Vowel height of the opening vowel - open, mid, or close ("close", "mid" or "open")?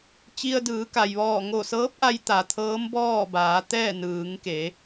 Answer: close